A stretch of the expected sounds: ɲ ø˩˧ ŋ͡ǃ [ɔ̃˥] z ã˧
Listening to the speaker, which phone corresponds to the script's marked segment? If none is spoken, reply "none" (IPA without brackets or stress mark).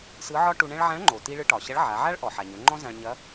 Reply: ɔ̃˥